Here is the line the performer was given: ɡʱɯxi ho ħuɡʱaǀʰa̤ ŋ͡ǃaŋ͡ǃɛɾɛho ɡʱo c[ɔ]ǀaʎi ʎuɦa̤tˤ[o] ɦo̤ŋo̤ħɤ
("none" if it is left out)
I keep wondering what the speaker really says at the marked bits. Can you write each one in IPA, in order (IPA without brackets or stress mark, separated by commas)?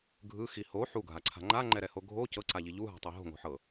ɤ, o